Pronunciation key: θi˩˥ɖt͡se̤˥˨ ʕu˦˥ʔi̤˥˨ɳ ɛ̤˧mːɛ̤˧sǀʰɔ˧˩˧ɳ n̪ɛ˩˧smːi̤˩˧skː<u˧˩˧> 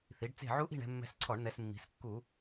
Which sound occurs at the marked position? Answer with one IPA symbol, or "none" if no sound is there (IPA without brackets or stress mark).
u˧˩˧